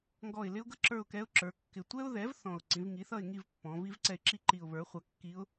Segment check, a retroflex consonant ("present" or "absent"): absent